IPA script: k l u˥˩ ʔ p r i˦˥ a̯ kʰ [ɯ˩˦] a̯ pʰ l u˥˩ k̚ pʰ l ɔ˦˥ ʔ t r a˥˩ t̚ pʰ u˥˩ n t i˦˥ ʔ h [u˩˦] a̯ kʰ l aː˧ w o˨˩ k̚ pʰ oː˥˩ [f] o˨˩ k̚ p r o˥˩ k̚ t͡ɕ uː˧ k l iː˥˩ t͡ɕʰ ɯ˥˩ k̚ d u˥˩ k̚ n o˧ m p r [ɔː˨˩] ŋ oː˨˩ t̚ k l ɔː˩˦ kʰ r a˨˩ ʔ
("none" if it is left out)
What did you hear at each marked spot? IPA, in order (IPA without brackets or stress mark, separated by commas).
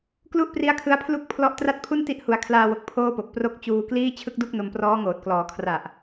ɯ˦˥, u˩˦, p, ɔː˦˥